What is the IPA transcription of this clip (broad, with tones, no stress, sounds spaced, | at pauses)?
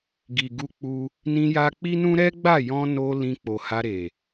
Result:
ɡ i˨ ɡ u˧ k͡p u˧ | n ĩ˧ j a˧ k͡p i˦ n ũ˦ ɾ ɛ˦ ɡ͡b a˦˨ j ɔ̃˧ n o˧ l ĩ˧ k͡p o˨ h a˧ ɾ e˨